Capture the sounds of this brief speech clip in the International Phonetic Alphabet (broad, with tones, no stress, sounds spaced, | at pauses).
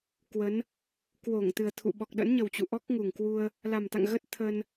k w ə˨˦ n | k w o˧˩ ŋ t̪ ɨ˨˩ ə̯ t̪ʰ ṵ˧˨ ɓ ɔ˨˩ k̚ ɗ ə̰˧˥ n ɲ ə˨˩ w t͡ɕ ṵ˧˨ ʔ ɔ˦˥ k̚ ŋ u˨˩ ŋ k w u˧ ə̯ | l a˨˩ m t̪ a̰˧˨ ŋ ɣ ə˦˥ t̚ t̪ʰ ə˧ n